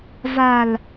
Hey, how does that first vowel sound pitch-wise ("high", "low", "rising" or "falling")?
low